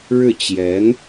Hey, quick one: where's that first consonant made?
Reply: retroflex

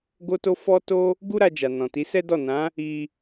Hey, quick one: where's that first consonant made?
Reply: velum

